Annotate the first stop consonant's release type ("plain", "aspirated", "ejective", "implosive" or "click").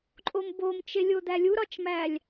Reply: click